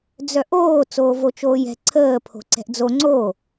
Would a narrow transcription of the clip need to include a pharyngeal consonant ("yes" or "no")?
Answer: no